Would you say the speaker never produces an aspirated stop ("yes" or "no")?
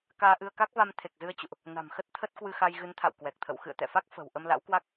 no